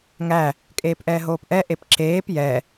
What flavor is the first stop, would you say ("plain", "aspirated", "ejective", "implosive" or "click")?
ejective